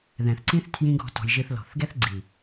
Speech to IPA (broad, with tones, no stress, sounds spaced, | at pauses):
ð ɛ̃˨ θ ǀ ĩ˦ θ tʰ j ĩ˦ ɡ ɔ̤˧ t ɔ̤˧ j ʒ ɨ˧ θ l ɔ̤˨ θ ɡ ɛ˦ θ ɡ͡ǀ i˨